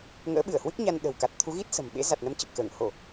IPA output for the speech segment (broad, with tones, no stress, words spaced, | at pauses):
ŋə̰ː˧˥ ɓɨ˧˩ə̯hwɨ˦˥k̚ɲa˧n ɗə̤˨˩wka˨˩t̚t̪ʰu˨˦ɣi˦˥t̚ sə̤˨˩mɓḛ˧˥ za˨˩t̚nə˨˦mt͡ɕə˨˩p̚ kəː˧˩ŋ ho˧˩˨